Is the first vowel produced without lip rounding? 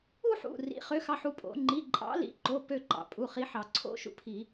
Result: no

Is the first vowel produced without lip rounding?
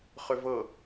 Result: no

